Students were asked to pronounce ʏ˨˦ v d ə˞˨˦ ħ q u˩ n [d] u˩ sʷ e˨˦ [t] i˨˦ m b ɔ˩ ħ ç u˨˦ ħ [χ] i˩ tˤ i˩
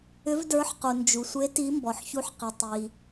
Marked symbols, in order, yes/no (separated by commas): no, yes, no